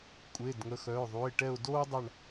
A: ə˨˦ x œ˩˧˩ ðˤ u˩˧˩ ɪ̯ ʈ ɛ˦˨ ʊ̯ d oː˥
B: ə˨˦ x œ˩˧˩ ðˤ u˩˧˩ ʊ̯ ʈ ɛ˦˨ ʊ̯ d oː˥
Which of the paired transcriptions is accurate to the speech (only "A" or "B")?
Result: A